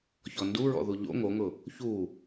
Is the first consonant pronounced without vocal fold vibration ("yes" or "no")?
yes